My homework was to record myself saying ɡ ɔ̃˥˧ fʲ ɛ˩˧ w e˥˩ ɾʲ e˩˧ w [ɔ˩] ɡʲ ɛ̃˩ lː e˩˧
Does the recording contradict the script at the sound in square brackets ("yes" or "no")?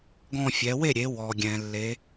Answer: no